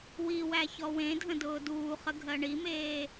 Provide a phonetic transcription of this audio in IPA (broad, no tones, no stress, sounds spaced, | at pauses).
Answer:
w i w æ ç ɔ w ẽ dʱ ə̃ d ʊː d uː χ ə ɡʱ ɜ ɳ i m eː